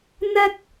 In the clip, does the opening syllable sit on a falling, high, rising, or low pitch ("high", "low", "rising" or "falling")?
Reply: high